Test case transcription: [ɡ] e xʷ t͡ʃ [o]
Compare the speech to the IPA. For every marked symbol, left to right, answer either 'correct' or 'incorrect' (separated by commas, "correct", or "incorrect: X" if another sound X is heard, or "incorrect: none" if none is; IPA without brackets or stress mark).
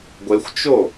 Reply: incorrect: ɡʷ, correct